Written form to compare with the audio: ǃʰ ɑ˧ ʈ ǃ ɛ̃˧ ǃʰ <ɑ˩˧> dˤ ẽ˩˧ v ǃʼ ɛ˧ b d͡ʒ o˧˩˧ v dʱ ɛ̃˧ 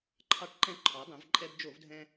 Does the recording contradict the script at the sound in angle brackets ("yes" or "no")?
yes